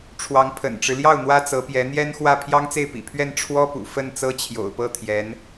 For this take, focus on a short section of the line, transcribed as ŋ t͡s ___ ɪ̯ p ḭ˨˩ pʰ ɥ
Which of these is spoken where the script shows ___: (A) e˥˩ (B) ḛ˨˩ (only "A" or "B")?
A